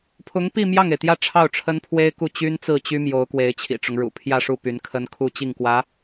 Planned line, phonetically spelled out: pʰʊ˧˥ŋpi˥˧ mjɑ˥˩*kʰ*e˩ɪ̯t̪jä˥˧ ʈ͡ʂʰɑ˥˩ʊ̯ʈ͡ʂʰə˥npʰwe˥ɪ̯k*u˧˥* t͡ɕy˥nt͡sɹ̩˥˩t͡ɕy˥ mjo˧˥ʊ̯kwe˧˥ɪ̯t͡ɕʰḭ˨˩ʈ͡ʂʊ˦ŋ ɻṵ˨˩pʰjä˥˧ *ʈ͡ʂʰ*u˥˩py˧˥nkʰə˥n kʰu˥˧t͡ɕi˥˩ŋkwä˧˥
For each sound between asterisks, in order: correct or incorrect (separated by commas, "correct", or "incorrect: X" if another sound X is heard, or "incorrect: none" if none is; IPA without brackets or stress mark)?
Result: incorrect: ŋ, incorrect: u˥˩, incorrect: ʂ